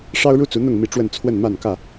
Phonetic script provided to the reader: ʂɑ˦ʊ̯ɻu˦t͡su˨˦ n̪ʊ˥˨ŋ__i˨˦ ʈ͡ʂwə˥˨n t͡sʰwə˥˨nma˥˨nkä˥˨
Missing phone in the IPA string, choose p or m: m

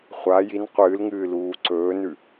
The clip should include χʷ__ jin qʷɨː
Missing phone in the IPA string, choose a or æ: a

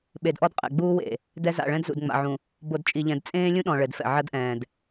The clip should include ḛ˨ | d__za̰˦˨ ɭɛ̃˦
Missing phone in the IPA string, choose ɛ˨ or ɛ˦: ɛ˦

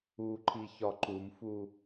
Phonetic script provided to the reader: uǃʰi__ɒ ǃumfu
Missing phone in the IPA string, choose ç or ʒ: ç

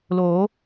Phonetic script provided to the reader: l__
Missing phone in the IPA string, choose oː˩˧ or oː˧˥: oː˩˧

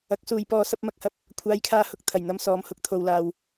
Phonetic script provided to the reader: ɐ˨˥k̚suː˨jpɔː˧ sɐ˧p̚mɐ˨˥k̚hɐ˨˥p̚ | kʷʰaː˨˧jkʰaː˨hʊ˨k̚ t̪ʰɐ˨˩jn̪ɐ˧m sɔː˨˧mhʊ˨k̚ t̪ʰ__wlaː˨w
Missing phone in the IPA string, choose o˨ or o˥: o˨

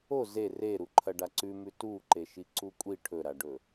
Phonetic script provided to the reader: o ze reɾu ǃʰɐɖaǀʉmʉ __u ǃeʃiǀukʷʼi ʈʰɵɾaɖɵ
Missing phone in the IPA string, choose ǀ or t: t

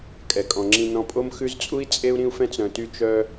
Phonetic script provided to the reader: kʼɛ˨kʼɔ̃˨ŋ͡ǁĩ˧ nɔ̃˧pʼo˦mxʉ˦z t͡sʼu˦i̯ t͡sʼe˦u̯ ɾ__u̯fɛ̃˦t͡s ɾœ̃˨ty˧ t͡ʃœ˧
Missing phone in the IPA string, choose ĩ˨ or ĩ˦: ĩ˦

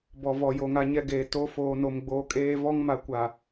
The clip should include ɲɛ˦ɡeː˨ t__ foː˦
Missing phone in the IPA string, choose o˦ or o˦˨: o˦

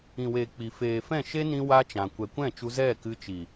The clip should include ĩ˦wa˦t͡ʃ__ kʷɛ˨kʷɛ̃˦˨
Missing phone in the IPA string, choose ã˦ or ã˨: ã˨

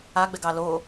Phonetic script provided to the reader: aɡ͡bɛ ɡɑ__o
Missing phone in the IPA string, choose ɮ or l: l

